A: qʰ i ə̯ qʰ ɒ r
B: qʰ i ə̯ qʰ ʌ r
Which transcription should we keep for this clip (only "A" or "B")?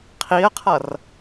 B